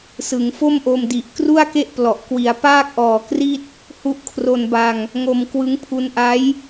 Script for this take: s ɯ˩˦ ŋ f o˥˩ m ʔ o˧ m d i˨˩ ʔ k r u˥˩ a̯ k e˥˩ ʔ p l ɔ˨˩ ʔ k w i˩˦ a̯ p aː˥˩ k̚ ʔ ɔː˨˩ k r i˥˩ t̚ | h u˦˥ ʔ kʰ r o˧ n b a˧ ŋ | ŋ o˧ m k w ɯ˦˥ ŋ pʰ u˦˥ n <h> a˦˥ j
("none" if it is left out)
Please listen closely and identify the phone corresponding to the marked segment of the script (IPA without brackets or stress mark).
ʔ